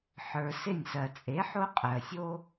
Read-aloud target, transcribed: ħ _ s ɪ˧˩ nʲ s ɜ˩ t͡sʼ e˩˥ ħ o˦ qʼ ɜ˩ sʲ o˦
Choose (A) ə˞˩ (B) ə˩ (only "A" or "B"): A